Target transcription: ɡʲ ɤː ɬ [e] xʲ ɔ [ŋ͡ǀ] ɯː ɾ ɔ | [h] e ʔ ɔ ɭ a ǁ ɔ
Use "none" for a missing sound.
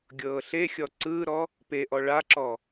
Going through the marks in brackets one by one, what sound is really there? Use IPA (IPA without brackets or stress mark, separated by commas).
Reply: e, ǀ, p